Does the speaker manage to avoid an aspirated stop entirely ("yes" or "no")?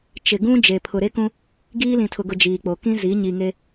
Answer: no